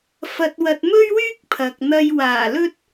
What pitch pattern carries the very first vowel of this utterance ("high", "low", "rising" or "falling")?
low